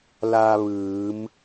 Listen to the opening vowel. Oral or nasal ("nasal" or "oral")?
oral